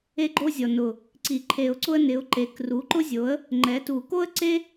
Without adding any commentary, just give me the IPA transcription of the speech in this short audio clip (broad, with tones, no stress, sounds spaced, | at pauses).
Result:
e˥ ɡ͡ǃ o˥ zʲ ɔ˨˩ n ʊ˨˩ | ǀ i˨˩˦ ǃʰ e˨˩˦ ʊ̯ ǀ ʊ˥ ə̯ n ɪ˩˥ ʊ̯ ǃ e˩˥ k r u˩˥ ǃ ʊ˥ zʲ o˩˥ ə̯ | ŋ͡ǃ ɛ˩˥ t u˨˩˦ k o˥ ə̯ ǀ e˥